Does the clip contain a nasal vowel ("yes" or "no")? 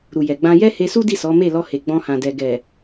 yes